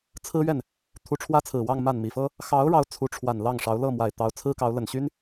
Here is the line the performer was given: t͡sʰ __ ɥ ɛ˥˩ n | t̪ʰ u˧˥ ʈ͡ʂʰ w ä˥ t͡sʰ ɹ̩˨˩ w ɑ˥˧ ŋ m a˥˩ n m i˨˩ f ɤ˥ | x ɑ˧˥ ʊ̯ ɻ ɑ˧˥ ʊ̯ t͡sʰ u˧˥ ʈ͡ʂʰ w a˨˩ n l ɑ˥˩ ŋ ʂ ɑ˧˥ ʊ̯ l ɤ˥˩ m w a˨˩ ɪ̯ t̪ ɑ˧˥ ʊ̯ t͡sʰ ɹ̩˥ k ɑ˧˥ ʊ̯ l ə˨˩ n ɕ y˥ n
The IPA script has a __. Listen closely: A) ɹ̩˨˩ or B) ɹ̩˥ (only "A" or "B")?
B